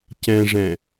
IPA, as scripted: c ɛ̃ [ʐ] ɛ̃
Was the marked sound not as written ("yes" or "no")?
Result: no